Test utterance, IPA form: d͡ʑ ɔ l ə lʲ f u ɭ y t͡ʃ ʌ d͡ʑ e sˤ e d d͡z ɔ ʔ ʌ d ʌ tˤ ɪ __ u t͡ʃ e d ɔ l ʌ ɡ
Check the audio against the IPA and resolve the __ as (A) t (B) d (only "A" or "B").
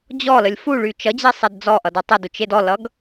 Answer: B